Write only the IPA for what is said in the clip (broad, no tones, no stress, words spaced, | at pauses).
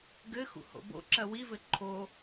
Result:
ɡɘxṵ ho̰bo̰ǁɐ wivɘ ǃʰo